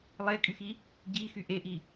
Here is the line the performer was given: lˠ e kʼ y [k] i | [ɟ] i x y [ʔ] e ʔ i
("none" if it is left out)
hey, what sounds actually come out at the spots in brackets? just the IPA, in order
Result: x, ɟ, ʔ

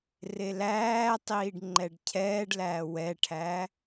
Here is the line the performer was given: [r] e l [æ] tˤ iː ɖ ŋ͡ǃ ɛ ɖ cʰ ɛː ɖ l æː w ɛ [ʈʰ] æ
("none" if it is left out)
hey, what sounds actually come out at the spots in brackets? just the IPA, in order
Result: r, æː, ʈʰ

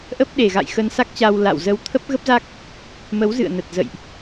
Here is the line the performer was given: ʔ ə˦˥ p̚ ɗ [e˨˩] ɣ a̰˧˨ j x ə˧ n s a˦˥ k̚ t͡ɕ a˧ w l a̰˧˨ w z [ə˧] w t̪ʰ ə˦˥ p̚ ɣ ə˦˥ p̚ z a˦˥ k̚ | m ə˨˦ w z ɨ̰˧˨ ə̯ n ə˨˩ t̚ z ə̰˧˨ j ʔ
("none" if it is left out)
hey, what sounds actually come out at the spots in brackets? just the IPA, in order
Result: e˨˩, ə˧

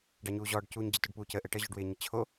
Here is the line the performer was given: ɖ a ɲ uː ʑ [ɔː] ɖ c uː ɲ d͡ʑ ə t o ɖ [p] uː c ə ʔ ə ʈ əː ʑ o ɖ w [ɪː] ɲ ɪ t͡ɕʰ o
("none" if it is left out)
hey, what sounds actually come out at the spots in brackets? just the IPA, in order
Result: ɔː, p, ɪː

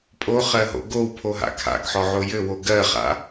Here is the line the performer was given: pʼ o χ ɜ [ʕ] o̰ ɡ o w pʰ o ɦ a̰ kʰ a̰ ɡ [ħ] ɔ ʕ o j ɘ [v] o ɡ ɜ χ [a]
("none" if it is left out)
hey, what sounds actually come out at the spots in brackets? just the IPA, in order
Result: ɦ, ħ, w, a̰

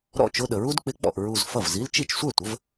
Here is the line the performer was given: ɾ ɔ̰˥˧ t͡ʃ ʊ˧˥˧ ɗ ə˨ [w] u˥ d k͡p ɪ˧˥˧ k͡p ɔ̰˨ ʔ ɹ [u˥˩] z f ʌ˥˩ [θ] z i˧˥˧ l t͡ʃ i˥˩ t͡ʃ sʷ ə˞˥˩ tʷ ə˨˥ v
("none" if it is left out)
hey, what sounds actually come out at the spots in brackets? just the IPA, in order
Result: ɹ, u˥˧, v

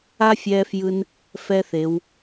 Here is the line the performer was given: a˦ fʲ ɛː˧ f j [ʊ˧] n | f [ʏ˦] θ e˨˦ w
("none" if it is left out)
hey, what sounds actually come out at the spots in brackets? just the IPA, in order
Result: ɯ˧, ɛ˦

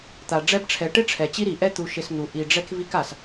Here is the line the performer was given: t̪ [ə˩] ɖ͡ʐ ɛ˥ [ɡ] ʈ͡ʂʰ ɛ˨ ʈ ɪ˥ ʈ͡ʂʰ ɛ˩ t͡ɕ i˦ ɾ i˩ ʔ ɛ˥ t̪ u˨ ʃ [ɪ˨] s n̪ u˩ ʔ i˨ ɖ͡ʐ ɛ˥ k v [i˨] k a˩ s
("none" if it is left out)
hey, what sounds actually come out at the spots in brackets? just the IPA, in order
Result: a˩, b, ɪ˨, i˦

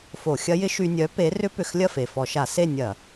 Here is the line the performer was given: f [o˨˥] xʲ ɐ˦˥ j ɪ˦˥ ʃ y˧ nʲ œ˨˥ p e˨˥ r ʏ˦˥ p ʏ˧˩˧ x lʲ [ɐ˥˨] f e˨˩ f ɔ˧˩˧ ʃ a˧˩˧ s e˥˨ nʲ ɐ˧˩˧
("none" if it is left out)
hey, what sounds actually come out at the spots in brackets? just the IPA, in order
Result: o˧˩˧, ɐ˥˨

